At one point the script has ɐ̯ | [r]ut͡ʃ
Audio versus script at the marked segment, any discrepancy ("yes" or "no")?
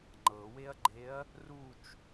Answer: no